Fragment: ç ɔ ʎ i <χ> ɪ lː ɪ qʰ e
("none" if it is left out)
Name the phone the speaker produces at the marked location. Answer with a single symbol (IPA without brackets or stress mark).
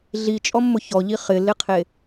χ